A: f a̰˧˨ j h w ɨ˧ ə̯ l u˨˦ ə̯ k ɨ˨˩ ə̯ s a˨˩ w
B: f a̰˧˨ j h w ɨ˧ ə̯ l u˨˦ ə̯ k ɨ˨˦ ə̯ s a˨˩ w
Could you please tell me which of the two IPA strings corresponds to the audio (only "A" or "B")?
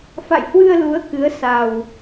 B